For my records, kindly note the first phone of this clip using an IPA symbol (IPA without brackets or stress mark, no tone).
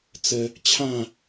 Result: t͡s